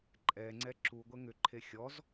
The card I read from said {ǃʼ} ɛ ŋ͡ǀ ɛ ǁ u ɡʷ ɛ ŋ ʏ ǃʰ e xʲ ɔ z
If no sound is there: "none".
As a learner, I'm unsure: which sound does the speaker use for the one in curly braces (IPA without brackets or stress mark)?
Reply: ǃʼ